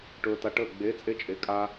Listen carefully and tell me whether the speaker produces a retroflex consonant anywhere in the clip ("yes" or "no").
yes